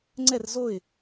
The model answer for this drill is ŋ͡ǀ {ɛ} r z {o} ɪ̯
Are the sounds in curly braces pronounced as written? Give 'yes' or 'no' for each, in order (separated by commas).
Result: yes, yes